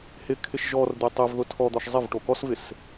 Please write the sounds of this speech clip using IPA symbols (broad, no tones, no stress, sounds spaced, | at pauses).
h ɪ kʰ ɪ ʃ ʒ ɔ r d̪ e tˤ ɪ v ð ʊ tʰ ɔ d̪ ɔ ʃ zˤ ɪ v ʈ o k ɔ s v ɪ s